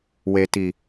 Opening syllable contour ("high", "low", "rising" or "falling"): low